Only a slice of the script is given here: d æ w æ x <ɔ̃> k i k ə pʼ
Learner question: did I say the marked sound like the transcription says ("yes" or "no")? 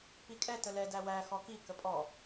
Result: no